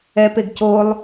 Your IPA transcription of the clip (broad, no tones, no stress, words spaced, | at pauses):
ɛpeɡ colˠ